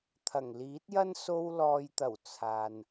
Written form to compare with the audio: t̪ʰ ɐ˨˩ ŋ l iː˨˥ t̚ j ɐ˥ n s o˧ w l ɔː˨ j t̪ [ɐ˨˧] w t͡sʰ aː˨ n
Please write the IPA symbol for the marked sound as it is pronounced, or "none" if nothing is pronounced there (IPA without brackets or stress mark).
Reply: ɐ˨˩